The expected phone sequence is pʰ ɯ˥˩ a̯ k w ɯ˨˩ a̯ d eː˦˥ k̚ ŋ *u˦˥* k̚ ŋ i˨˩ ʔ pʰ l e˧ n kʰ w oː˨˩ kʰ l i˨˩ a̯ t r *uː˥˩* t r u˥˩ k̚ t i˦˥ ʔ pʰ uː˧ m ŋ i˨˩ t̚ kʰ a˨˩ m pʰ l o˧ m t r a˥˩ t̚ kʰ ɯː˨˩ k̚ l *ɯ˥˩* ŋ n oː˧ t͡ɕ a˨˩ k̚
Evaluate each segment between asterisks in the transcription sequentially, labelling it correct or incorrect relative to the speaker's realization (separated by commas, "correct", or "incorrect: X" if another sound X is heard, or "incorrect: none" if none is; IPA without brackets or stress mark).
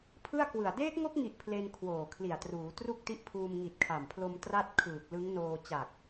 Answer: incorrect: o˦˥, incorrect: uː˩˦, incorrect: ɯ˦˥